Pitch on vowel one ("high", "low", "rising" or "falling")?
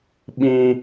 high